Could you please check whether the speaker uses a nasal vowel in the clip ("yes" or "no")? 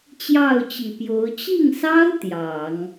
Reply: no